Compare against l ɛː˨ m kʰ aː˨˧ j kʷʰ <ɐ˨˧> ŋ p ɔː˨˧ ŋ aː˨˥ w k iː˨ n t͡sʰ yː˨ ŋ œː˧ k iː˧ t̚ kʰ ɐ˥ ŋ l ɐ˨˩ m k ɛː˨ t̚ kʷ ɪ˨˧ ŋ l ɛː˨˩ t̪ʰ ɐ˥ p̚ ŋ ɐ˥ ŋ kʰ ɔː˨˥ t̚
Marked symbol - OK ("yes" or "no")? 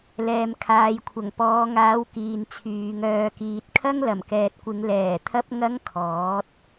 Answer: no